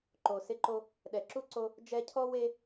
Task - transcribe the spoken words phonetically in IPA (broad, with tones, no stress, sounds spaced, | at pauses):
ǃ o˨ s ɪ˦ ǃ o˦ | ɗ ɛ˨ ǁ u˥ ǀ o˦ | d͡ʒ ɛ˦ cʰ ɔ˥ w e˥